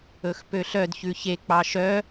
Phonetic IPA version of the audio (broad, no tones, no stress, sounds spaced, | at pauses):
ɵ x p ø ɬ œ d ç ʉ ç e k͡p ɑ ʃ œ